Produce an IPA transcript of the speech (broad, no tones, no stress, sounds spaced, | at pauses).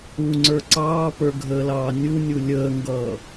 u ŋ͡ǀ ə˞ ǀ ɑː p ə˞ ɡʱ əː l ɑː nʲ u nʲ u lʲ əː ŋ ɡ ʌː